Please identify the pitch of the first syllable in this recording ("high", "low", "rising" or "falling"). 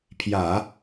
low